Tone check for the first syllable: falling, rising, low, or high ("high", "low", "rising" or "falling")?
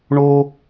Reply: high